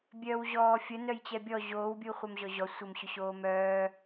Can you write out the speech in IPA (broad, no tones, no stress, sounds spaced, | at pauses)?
bʲ œː w ʑ ɔː fʲ ə n œ j t͡ɕ ɛ bʲ ɔ ʑ oː w bʲ uː χʷ œ m ʑ ɔ ʑ ɔ sʷ ə m ɕ ʊ ɕ oː m œː